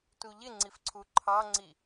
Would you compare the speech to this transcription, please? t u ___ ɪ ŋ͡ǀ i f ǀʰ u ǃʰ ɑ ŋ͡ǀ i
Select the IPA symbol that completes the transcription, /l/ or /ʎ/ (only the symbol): ʎ